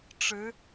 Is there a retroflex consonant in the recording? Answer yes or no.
yes